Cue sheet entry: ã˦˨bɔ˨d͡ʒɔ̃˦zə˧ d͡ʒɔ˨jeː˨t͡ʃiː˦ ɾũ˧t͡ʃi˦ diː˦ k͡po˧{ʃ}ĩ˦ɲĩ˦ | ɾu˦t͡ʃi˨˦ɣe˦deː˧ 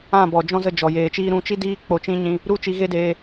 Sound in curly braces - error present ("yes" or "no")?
yes